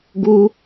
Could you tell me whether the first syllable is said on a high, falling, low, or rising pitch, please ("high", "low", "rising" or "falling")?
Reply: high